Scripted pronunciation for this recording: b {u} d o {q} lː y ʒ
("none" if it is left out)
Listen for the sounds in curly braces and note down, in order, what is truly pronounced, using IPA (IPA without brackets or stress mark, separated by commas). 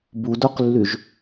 u, q